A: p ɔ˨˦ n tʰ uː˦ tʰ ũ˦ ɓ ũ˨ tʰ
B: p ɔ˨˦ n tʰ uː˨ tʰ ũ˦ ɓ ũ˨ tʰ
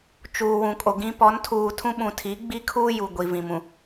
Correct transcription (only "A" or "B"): B